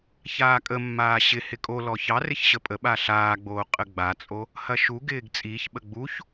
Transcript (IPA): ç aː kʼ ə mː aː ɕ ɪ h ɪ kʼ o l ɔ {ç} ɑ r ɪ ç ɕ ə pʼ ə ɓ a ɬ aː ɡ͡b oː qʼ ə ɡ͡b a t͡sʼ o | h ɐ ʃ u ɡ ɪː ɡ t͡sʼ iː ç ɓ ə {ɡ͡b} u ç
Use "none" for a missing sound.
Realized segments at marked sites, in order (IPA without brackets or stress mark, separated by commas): ç, ɡ͡b